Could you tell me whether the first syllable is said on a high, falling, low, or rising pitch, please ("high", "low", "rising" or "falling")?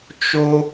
high